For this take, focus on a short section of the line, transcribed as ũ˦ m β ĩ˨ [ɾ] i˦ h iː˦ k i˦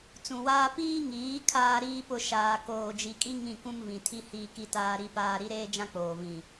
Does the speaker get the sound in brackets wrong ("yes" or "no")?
yes